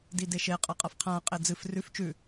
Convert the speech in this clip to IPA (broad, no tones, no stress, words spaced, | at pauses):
dideʃe qʼɐqʼɐfqʰã qʼed͡zɨf rʉf t͡ʃʉ